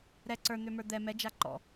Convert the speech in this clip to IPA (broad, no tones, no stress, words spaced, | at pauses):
ɾɛ ǀə˞n̪ø mə˞d̪ɛ mɛd͡ʒa ǃɔ̰